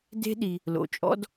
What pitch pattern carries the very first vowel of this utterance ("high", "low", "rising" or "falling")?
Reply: high